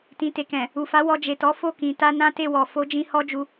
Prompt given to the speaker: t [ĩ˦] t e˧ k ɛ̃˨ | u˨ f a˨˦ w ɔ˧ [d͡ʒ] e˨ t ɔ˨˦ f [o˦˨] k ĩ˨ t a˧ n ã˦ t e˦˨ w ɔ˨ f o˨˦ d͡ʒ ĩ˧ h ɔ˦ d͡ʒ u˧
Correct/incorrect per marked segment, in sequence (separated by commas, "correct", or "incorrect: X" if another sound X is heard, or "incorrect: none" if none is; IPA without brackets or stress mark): incorrect: ĩ˧, correct, correct